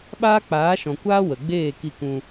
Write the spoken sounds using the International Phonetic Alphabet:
ɓ aː˦ k͡p aː˨˦ ʃ ɔ̃˨ kʷ aː˦ w ə˨ ɡ͡b eː˦˨ k i˧ k ũ˧

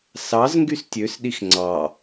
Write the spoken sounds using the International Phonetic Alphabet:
s ɑ z ŋ ɡ y s tʲ ø s ɗ i x ŋ͡ǀ ɑ

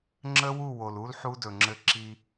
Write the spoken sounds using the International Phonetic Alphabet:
ŋ͡ǁ ə˦ w u˦˨ w o˨ l u˦ l ħ u˦ d ɵ˨ ŋ͡ǁ ɘ˦ ǁ i˦

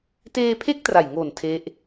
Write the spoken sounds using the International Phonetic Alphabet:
t eː˧ pʰ e˦˥ k̚ t r a˨˩ j ŋ o˨˩ n tʰ e˦˥ ʔ

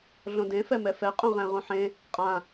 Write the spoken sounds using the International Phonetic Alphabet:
ɮ õ d ẽ f ɛ m ɛ f ɛ qʼ ũ ʁ ɛ̃ ʁ ũ ħ ẽ | qʼ ã

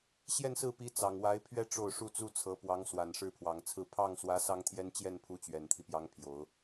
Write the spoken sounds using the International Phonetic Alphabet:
ɕ j ɛ˥˧ n s ɹ̩˥˩ p i˧˥ t͡s ɑ˨˩ ŋ w a˧˥ ɪ̯ pʰ ɥ ɛ˥˧ ʈ͡ʂ o˥˩ ʊ̯ ʂ u˥ t͡s u˥ t͡sʰ ɤ˧˥ p w ɑ˧˥ ŋ s w a˨˩ n ʂ ɻ̩˥˩ pʰ w ɑ˨˩ ŋ t͡sʰ ɹ̩˥˧ pʰ ɑ˥˩ ŋ s w ä˧˥ s ɑ˥ ŋ t̪ʰ j ɛ˥ n t͡ɕ j ɛ˥˩ n pʰ u˧˥ t͡ɕ ɥ ɛ˨˩ n t̪ʰ i˦ p j ɑ˧˥ ŋ pʰ j o˨˩˦ ʊ̯

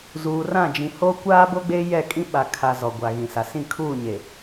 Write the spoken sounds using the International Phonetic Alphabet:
z uː˨ r ã˦˨ d͡ʒ ĩ˨ h o˦ kʷ aː˦ b o˦ ɡ͡b e˦ j ɛ˦˨ kʼ ĩ˦ ɓ a˨ kʰ a˨ z ɔ˨ ɡʷ a˨ ɣ ĩ˨ s a˨ s ĩ˦˨ kʰ uː˦˨ ɲ e˨

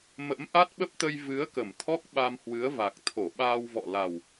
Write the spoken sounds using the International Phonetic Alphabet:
m ə̰˧˥ m ʔ a˦˥ t̚ ɓ ə˦˥ p̚ t̪ ə˧ j v ɨ˨˦ ə̯ k ə˧˩ m t̪ʰ ɔ˦˥ k̚ ɓ a˧ m h w ɨ˨˦ ə̯ v a˨˩ k̚ t̪ʰ o˧˩ ɓ aː˧ w v ɔ̰˧˨ l a˨˩ w

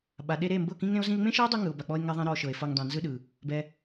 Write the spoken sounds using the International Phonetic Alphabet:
ɓ a˨ ɗ e˧ ɾ e˦˨ m b ɤ˦˨ k ĩ˦ ŋ ɾ ẽ˦ o̯ z ĩ˧ e̯ ŋ͡m ẽ˦ ʃ ɛ˦ e̯ dˤ u˧ ŋ ɯ˨ o̯ b a˨ k͡p ɔ˧ e̯ ŋ ɛ˦ ðˤ ẽ˦ ɾ ɔ˧ ʃ ɤ˨ e̯ f ɤ˧ ŋ dˤ ẽ˨ n z ɯ˦ ɗ ɯ˨ | b ɛ˧

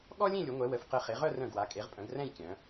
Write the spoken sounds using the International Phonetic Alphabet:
ɠ ɔ˥ lʲ ẽ˥˧ lʲ ʊ˩˧ ŋʷ ɛ˩˧ w ə˩˧ f q ə˧ χ e˩˧ ʁ œ˥˧ r œ̃˧˩ ɡ w a˩˧ kʼ e˩˧ ʁ pʼ œ̃˩˧ ɡ r ɛ̃˥˧ j kʲ œ̃˩˧

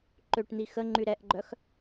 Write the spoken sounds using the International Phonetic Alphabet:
ǃ ø ʈ n̪ i x ə ŋ͡ǃ y ɾ ɛ ʔ ɡ͡ǃ œ x

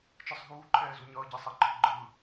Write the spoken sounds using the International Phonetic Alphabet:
t͡ʃ ɯ sˤ ɦ uː ǃʰ ɛː z u ɲ ʌː ɟ ɛ sˤ ɛ ǃʰ ɯ ɡ͡ǃ ɯː

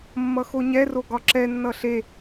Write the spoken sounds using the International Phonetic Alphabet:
mː ʌ x o ɲ ɛ r o ɡ ɒ ǁ ɛ nː ʌ ɬ e

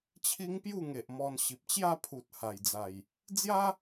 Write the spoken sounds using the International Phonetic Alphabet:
t͡ɕʰ i˦ ŋ p j u˥˧ ŋ e˨ ʔ m ɔ˧ n ɕ i˨ p̚ t͡ɕ j a˥˧ pʰ u˨ t̚ h a˨˩ j d͡z a˨˩ j | d͡z j a˦

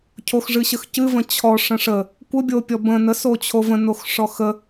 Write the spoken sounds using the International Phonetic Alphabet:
cʰ o x ʐ ɨ ɕ ə x c ɨ v ə̃ t͡ɕʰ ɔ ʂ ə̃ ʂ ə | kʷ ə bʲ o pʲ ɔ b ə̃ n ə s o t͡ɕʰ o v ə̃ n o x ʂ ɔ x ə

